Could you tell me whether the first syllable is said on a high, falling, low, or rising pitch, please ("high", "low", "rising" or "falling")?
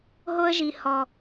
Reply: high